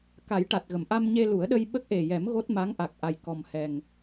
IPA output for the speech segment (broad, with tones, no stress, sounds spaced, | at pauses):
k a˨˩˦ j ʈ a˨˩ t̚ ɣ ə˨˩˨ m ʔ a˧ m ɲ e˧ l u˨˩˦ ə̯ ɗ ə˧ j ɓ ə˦˥ k̚ ʔ e˨˩ j ɛ˨˩˦ m ɣ o˦˥ t̚ m a˧˥ ŋ ʔ a˨˩ k̚ ʔ a˨˩ j k ɔ˨˩ m h ɛ˨˩ ŋ